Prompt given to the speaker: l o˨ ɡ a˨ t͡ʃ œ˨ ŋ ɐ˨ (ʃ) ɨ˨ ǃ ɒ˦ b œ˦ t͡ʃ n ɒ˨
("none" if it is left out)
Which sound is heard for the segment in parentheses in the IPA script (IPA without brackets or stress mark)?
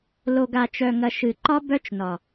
ʃ